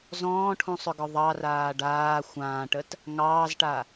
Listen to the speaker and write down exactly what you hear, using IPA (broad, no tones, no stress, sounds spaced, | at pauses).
z ɔ̃ː ʈʰ ũ sˤ ʏ ɡ ɔ ðˤ ɑ r aː ɖ aː xʷ ãː ʈ ə t | ŋ ɑː z ʈ a